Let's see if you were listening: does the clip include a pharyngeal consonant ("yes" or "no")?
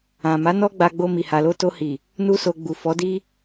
no